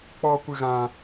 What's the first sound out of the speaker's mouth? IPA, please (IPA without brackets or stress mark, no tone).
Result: k͡p